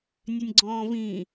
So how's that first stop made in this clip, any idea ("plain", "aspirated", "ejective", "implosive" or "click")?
click